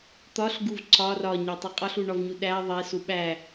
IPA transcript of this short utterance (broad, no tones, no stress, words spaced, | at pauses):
t̪ɒɬɡuv ǀɒ rɒɲætˤe qʼɒɬuɳɒvɲu ɗæ ðˤesu ɓæ